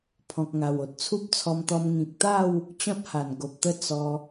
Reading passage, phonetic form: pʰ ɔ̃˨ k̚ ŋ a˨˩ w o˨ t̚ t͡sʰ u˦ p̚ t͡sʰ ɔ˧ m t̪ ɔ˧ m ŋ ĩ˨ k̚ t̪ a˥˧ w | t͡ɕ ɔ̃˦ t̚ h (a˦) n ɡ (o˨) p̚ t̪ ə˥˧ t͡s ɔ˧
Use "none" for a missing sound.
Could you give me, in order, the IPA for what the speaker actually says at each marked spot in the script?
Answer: a˨˩, o˨

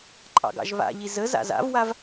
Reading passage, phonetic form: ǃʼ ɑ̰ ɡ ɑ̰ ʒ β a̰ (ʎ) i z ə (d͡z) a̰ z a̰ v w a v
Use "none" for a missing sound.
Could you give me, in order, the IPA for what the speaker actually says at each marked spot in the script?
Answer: ʎ, z

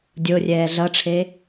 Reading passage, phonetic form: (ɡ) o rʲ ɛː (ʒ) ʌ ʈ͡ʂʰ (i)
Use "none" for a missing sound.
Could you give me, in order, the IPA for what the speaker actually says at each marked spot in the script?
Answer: dʲ, ɮ, e

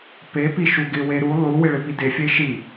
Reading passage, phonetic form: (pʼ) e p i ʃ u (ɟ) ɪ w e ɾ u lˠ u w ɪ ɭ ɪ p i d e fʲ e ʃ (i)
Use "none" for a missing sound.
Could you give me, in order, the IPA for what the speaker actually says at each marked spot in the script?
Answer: p, ɡ, i

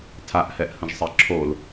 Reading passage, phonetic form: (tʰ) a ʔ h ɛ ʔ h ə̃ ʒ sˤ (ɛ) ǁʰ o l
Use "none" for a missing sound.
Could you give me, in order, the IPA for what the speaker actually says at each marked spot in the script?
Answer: tʰ, ɛ

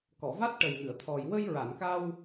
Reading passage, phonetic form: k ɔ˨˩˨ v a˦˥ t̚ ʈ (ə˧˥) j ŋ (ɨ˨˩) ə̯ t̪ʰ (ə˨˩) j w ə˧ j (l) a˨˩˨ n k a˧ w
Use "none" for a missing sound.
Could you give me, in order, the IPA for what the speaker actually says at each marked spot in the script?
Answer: ə˨˩, ɨ˨˩˨, ɔ˨˩, ɹ

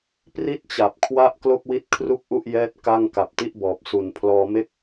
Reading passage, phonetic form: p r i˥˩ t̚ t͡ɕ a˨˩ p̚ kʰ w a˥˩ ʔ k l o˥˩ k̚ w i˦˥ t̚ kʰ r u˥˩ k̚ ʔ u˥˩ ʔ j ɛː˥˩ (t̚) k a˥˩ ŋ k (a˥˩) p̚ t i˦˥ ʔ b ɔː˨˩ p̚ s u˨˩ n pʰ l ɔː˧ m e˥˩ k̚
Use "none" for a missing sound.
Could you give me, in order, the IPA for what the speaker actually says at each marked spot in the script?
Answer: t̚, a˨˩

